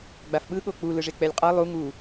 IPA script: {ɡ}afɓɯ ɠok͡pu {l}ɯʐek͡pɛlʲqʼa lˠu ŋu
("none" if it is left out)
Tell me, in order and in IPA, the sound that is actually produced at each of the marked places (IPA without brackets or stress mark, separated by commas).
ɡ͡b, l